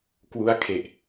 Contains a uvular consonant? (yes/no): no